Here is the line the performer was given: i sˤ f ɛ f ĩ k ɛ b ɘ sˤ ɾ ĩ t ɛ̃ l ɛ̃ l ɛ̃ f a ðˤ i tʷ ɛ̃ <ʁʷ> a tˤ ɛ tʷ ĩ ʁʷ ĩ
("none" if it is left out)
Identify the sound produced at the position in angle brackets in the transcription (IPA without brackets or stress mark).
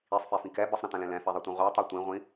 ʁʷ